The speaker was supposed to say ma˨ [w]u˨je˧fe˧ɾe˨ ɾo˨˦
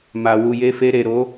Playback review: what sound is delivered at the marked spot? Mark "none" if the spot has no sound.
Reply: w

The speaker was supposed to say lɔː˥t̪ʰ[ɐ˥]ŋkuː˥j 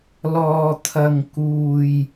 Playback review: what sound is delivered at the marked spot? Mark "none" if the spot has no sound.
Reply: ɐ˥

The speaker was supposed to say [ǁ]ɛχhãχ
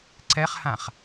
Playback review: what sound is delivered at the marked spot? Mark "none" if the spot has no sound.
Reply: ǀ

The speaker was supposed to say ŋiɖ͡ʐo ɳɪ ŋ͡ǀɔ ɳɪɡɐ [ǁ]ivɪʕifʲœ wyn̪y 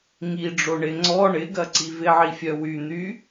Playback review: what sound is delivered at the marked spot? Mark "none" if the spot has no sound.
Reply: ǀ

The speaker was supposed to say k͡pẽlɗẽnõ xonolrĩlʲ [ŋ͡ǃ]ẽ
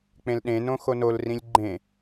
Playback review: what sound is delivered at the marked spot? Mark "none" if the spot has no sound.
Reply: ɡ͡ǃ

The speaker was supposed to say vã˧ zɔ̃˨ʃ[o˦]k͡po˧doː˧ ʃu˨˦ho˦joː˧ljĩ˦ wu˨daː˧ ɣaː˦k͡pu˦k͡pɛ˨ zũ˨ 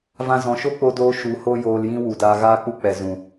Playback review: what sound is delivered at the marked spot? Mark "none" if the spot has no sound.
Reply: o˦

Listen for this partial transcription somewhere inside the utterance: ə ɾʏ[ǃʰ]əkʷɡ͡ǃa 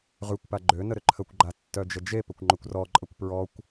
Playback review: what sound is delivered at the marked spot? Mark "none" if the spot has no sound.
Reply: ǃʰ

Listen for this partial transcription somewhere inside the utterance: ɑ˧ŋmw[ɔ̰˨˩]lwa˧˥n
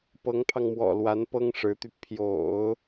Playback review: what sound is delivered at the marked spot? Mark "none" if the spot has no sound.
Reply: ɔ̰˨˩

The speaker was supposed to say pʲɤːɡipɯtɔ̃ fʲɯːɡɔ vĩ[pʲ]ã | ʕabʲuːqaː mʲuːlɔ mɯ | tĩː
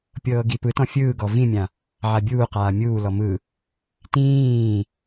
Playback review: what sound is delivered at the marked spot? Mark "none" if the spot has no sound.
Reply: mʲ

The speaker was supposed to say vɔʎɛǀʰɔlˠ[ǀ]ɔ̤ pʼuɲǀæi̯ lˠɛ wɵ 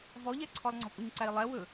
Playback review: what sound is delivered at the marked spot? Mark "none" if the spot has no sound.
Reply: ŋ͡ǀ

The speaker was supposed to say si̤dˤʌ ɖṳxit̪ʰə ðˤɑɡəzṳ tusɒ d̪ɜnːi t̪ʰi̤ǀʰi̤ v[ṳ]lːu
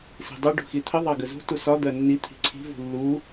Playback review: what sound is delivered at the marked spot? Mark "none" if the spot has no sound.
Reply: ṳ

